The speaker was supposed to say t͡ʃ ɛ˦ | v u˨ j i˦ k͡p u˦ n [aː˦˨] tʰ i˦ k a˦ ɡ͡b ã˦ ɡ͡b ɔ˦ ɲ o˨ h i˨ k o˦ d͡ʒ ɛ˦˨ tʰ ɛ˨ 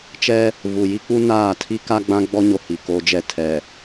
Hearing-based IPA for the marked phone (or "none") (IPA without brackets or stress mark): aː˦˨